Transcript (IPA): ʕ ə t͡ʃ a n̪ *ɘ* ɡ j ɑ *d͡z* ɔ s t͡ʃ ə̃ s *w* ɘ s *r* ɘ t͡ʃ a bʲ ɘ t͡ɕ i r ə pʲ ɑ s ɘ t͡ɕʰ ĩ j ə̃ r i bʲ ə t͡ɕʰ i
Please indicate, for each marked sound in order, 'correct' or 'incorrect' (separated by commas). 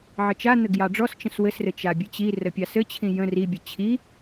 correct, incorrect, correct, correct